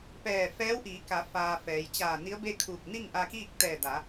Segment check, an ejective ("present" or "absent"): absent